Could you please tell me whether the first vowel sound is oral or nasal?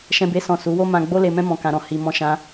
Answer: nasal